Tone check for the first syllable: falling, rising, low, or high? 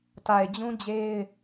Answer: low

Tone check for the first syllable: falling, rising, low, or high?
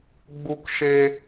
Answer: high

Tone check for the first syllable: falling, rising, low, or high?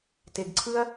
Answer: low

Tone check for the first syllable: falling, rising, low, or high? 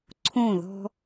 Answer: falling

